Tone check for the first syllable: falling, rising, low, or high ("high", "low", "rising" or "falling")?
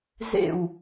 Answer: falling